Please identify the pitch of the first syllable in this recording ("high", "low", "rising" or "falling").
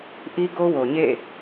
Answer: high